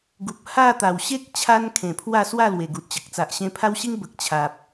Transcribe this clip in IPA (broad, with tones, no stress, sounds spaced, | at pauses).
ɡ u˨ p̚ h a˥˧ t̪ a˨˩ w ɕ e˦ k̚ t͡ɕʰ a˦ n kʰ ẽ˨˩ pʰ w a˥˧ s w a˥˧ l w e˨˩ ɡ u˨ t̚ t͡ɕ ə˨ k̚ t͡s a˨ ʔ ɕ ẽ˧ pʰ a˦ w ɕ i˦ ŋ b ə˨ k̚ t͡ɕʰ a˨ p̚